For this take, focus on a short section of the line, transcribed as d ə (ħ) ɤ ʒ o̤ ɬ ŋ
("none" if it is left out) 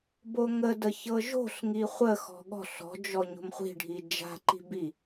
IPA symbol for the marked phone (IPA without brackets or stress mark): ç